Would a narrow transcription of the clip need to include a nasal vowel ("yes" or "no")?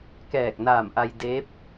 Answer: no